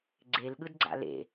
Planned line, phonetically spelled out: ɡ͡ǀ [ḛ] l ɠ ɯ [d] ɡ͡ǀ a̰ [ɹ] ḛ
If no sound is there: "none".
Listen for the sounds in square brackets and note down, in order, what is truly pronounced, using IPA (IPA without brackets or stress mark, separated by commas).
e, d, l